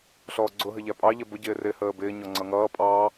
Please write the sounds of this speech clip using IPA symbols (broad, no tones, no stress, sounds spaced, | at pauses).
ɬ ɔː ɡ͡ǀ ʊ ɦ ə ʎ æ pʼ ɑ ʎ ɛ b ʊ ɟ ɪː r ɪ h əː b ɪː ɲ ɔ ŋ͡ǀ ʌ ŋ ʌː pʼ ɑ